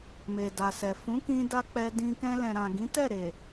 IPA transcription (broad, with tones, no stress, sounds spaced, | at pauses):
m e˨ d a˨ s ɛ˨ f ũ˨˦ k ĩ˦ d a˦ k͡p ɛ˧ d ĩ˧ k ɛ̃˧ l ɛ̃˨ ɾ ã˨ ɡ ĩ˨˦ t ɛ˦˨ ɾ e˨